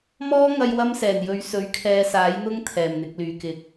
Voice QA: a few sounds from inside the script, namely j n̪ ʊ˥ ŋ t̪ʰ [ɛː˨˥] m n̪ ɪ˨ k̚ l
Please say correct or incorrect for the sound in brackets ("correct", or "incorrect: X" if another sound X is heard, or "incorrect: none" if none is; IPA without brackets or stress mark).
incorrect: ɛː˨˩